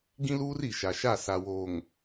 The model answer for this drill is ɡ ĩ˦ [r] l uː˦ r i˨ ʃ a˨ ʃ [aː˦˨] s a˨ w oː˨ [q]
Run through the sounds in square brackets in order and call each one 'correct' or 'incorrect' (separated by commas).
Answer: incorrect, incorrect, incorrect